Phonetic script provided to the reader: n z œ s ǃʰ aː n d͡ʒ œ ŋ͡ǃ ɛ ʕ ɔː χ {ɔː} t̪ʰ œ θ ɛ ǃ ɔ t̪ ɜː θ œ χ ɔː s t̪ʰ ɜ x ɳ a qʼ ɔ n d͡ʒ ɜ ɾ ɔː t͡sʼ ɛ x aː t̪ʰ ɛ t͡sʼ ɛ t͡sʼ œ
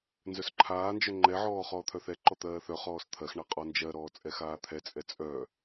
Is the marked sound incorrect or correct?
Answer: correct